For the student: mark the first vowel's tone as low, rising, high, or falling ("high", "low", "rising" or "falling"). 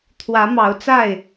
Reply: rising